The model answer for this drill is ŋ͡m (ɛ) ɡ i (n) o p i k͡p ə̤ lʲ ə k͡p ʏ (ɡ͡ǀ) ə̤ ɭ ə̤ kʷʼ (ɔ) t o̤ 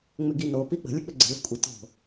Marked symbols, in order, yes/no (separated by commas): no, yes, yes, no